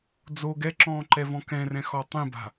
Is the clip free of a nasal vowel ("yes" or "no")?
no